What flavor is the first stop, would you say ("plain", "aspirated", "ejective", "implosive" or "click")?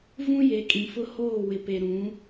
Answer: ejective